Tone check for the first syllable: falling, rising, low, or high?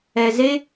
low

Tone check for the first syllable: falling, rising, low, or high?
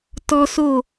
high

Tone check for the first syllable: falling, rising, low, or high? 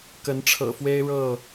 rising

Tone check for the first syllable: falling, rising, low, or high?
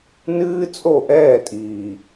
high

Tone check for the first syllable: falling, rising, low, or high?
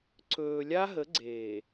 low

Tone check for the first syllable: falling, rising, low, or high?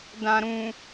low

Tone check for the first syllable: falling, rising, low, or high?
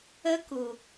high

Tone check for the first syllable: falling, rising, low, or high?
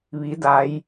rising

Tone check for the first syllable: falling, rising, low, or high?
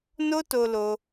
high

